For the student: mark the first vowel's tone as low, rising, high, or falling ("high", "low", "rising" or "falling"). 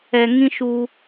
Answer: low